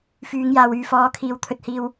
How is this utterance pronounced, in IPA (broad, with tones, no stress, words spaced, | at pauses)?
fyː˨˧ŋjaː˨w yː˨fɔː˨˥kʰiː˨˥w t̪ʰɵ˧t̚hiː˧w